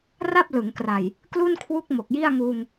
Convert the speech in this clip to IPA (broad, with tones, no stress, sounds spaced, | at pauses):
r a˥˩ p̚ l ɯ˩˦ ŋ k r a˨˩ j | k l u˥˩ n kʰ w u˦˥ k̚ m o˨˩ k̚ j i˥˩ a̯ ŋ uː˧ ŋ